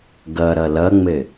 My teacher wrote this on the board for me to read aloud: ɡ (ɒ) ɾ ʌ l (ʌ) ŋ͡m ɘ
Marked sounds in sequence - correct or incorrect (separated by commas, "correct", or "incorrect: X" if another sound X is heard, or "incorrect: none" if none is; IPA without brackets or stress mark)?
incorrect: ʌ, correct